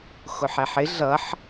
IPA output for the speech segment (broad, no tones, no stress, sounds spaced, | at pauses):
x ʊ ħ ɛ ħ ɪ ɮ ʌ ħ